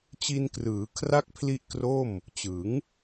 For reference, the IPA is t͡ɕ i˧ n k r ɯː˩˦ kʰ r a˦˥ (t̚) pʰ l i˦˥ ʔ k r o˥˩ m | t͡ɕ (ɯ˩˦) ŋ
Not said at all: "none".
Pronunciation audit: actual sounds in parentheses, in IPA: k̚, ɯ˩˦

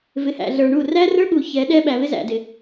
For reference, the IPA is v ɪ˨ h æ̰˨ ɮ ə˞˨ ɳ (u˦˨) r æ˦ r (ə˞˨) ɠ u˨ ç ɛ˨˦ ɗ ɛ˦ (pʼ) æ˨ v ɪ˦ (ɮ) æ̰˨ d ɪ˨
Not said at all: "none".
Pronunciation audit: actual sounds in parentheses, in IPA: u˦˨, ə˞˦, ɓ, z

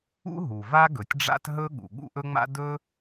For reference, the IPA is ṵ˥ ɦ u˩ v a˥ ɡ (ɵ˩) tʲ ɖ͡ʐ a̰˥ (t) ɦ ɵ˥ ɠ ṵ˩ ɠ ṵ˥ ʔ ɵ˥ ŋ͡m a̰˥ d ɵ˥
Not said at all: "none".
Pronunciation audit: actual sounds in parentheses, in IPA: ɵ˩, t

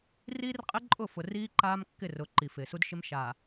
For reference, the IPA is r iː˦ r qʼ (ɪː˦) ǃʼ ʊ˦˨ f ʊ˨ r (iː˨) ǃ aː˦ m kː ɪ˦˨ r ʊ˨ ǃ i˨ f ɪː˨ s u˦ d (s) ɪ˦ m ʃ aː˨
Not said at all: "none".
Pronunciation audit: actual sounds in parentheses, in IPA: ɪ˦, iː˦, ʃ

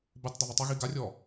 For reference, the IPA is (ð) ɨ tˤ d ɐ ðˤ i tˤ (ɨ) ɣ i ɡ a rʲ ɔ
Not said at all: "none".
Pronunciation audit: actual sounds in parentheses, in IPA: b, ɨ

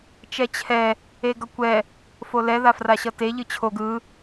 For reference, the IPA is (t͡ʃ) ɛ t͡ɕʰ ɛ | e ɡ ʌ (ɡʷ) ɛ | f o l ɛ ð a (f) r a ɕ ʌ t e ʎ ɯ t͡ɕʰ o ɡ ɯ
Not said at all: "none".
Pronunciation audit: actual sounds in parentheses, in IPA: t͡ʃ, kʷ, f

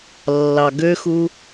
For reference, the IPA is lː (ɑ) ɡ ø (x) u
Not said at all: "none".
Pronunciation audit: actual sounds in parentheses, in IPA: ɑ, x

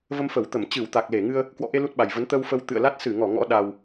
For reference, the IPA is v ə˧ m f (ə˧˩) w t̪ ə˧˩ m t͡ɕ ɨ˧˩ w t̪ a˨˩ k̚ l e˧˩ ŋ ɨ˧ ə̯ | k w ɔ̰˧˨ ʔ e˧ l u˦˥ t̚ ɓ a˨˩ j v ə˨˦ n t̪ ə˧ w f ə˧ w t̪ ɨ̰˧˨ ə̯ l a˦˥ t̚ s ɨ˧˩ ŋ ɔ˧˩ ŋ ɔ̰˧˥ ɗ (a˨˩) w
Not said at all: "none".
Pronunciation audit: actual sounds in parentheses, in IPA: ə˧˩, a˨˩

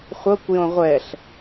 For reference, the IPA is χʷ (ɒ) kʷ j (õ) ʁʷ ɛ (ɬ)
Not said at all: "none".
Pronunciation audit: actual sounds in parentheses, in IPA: ʌ, õ, ɬ

